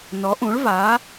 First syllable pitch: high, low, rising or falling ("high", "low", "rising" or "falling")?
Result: rising